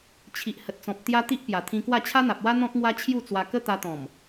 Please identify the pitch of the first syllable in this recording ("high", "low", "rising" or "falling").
low